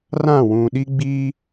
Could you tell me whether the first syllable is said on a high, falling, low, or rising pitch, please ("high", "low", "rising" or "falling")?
falling